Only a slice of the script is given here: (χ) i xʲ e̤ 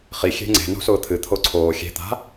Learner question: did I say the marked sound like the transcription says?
yes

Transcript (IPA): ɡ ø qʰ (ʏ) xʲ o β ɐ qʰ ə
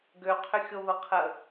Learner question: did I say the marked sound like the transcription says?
yes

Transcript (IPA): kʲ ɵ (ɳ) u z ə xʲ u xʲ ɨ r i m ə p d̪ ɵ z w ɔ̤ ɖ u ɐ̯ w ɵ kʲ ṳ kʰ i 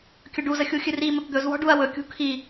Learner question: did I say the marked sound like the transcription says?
no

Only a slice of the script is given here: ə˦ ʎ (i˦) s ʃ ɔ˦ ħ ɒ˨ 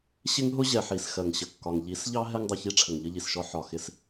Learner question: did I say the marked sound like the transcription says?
no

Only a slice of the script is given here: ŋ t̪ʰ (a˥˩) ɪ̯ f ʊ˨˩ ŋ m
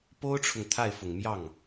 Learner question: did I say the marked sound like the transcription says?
yes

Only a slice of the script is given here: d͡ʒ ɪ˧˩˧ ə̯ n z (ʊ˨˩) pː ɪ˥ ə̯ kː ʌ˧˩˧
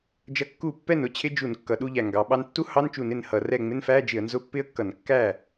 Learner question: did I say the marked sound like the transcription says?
no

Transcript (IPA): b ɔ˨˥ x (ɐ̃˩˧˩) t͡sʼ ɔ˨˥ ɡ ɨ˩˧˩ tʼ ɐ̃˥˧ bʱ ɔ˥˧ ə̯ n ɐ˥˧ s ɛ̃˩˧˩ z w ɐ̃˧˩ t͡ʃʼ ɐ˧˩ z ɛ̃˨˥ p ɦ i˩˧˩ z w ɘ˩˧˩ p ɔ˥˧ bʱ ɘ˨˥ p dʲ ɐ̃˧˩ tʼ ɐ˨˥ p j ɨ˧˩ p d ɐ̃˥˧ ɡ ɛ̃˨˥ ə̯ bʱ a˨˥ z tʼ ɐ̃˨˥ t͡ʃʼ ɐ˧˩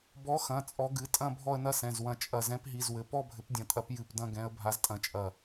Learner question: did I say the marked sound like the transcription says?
yes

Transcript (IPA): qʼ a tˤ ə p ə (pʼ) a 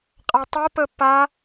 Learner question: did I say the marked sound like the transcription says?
no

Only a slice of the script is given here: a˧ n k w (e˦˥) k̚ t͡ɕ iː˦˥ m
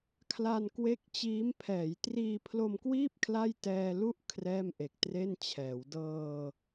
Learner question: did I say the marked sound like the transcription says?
yes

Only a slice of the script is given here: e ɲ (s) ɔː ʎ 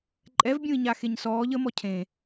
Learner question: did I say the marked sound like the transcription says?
yes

